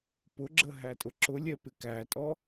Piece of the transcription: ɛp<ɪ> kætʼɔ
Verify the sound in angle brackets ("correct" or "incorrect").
correct